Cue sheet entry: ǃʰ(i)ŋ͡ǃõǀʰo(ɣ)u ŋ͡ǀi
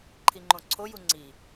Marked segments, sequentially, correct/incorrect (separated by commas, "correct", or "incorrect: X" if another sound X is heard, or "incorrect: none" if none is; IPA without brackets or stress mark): correct, incorrect: j